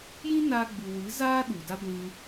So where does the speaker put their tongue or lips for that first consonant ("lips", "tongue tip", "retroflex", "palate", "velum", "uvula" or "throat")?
palate